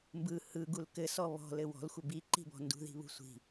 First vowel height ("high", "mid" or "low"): high